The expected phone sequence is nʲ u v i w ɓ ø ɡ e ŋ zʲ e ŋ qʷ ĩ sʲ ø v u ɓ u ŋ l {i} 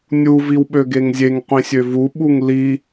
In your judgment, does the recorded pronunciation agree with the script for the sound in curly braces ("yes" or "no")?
yes